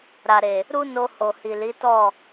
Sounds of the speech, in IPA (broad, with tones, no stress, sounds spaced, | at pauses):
ɾ a˨ ɾ e˨ | ɾ u˦ n o˧ h o˨ h i˨ l i˨˦ t ɔ˦˨